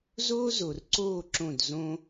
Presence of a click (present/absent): present